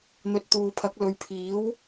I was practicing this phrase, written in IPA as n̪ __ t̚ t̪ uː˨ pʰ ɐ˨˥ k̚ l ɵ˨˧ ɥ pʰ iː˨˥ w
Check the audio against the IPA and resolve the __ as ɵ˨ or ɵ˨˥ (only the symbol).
ɵ˨